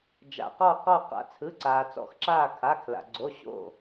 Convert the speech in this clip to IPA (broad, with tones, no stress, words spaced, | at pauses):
d͡ʒa̰˩qɔ˧˩ qɔ˧˩qa̰˩ t͡sʰɯ˩˧˩ǀaː˩t͡sɔ̰˩˧˩xǁaː˧˩ kʰa˩˧˩kʰla̰˩ ɡ͡ǀo˩˧˩ɕo̰˧˩